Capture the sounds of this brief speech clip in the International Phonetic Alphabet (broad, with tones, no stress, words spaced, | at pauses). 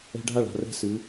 ɛ̤˧ɖʱa˦˨ɭ a̤˧rɛ̤˦sɨ˨˦